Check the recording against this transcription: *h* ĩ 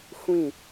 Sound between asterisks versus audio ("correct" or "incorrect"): incorrect